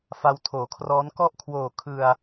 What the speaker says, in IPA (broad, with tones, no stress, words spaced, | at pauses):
fa˧wtʰoː˩˦kʰrɔː˦˥n kɔ˦˥ʔkʰwoː˨˩kʰɯ˧a̯